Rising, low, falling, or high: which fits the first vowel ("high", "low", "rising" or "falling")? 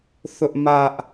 high